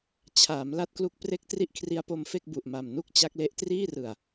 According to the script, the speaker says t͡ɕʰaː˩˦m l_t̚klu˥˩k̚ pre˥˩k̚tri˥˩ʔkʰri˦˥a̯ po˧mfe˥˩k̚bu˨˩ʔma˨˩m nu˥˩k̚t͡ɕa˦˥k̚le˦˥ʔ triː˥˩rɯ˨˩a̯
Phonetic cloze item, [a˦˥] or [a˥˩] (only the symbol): a˥˩